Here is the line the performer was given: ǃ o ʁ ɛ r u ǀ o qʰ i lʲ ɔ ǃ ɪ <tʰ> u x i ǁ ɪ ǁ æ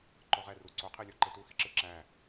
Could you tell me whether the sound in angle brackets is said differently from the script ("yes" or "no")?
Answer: yes